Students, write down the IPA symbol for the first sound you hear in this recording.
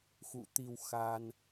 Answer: x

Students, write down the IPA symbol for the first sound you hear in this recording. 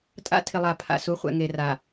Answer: tʼ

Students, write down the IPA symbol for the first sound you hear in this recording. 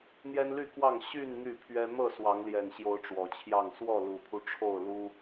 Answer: n̪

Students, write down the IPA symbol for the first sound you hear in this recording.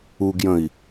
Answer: u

